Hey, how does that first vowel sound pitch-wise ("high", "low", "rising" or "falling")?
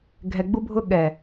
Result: low